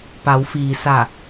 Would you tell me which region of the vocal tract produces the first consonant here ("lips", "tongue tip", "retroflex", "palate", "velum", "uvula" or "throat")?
lips